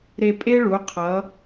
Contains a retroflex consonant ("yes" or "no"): yes